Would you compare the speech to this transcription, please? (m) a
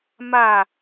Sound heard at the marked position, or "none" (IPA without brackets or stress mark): m